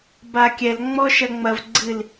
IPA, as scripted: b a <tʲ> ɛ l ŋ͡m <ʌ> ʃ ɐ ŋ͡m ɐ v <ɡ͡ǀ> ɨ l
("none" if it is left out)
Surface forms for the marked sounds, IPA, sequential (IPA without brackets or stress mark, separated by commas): kʲ, ɔ, ɡ͡ǀ